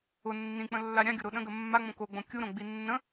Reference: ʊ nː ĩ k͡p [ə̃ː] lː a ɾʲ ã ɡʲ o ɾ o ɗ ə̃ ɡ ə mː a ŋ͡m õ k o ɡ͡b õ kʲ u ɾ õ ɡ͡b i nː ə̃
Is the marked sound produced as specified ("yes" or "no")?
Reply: no